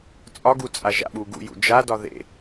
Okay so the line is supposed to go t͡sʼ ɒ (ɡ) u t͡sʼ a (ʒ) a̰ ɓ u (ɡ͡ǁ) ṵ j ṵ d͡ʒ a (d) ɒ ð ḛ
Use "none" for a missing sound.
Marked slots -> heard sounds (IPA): ɡ, ʒ, ɡ, d

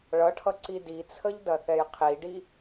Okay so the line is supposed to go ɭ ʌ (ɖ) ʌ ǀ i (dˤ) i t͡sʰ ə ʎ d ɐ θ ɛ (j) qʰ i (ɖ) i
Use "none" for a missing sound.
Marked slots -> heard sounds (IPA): ʈʰ, d, j, ɖ

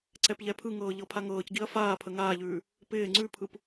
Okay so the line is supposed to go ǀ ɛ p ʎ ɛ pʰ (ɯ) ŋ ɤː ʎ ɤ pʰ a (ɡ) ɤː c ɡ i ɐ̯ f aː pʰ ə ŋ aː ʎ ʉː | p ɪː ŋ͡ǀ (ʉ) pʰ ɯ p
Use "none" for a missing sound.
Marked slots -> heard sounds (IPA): ɯ, ŋ, ʉ

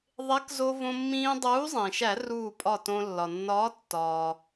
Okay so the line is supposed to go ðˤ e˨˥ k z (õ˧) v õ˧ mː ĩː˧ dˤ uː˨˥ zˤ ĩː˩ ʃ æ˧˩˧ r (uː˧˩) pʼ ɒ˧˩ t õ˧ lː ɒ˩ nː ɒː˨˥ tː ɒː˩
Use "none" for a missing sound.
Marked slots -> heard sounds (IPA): o˧, uː˧˩

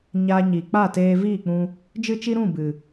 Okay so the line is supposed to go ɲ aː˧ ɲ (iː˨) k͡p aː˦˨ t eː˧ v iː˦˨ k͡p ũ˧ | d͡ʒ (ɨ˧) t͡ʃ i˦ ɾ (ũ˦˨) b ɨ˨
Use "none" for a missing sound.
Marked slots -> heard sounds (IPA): iː˨, ɨ˦, ũ˦˨

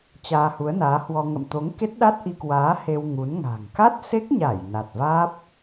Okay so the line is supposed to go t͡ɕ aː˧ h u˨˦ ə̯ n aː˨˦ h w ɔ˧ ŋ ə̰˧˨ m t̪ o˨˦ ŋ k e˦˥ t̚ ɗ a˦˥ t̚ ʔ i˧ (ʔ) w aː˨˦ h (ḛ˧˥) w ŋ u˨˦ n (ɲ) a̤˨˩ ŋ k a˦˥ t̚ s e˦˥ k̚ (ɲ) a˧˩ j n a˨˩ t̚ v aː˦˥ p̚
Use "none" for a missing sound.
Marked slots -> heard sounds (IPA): k, e˧, ŋ, ɲ

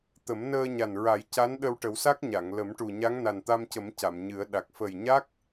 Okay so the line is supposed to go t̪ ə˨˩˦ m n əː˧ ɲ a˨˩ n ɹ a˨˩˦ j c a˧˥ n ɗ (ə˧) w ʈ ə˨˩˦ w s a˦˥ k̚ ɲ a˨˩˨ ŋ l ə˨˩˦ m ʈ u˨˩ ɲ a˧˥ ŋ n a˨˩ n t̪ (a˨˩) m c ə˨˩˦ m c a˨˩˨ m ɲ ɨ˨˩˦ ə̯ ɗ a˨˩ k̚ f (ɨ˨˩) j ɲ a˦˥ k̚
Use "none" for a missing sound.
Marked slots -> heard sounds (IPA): ə˧, a˧, ə˨˩

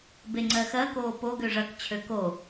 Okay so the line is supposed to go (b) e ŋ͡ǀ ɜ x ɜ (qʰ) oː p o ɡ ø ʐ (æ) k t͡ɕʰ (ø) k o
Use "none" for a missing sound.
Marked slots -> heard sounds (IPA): b, k, ɐ, ø

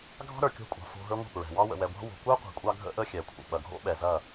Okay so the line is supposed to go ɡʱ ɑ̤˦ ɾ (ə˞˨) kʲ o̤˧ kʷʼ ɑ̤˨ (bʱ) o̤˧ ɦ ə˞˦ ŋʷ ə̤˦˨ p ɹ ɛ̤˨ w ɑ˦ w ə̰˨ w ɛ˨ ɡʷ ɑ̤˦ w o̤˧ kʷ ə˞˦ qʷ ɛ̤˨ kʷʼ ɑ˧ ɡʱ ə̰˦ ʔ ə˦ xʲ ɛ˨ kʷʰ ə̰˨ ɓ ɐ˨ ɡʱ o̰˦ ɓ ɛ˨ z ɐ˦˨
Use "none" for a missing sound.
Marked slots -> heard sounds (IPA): ə˞˨, f

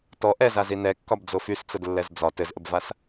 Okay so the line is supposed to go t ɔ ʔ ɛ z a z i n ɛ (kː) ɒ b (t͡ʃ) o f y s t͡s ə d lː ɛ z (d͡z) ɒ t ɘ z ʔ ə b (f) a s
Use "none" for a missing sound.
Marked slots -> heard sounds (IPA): kː, d͡z, d͡z, v

